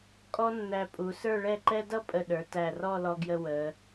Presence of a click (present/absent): present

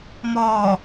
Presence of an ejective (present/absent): absent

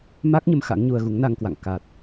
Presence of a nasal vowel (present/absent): absent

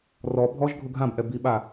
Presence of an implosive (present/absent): present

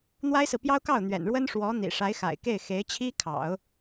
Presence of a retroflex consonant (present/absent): present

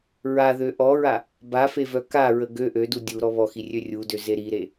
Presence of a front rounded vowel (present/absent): present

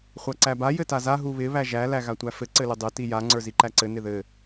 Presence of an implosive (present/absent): absent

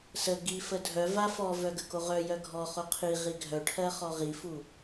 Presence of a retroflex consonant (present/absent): present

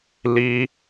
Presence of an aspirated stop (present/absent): absent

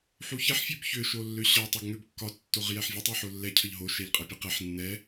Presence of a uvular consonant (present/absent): present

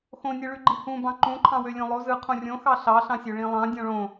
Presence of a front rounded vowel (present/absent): present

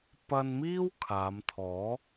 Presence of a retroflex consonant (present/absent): absent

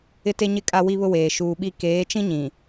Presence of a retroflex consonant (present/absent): absent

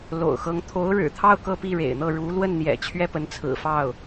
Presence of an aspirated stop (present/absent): present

